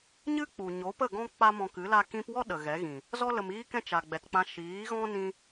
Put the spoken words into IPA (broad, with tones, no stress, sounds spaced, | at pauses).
ɲ ɨ˦ k͡p u˨ ɲ o˨˦ p ə˦˨ ɡ ɔ̃˦ k͡p a˦ m ɔ̃˧ k ɨ˨˦ l a˦ k ĩ˧ p w ɔ˦ ɗ ə˨ ɣ ɛ˨˦ ɣ ĩ˨ | z ɔ˦ l ə˨ m iː˦ k ɛ̃˦ t͡ʃ a˨ ɡ͡b ɛ˨ t k͡p ã˧ ʃ iː˨˦ ɣ ɔ̃˦ n ĩ˦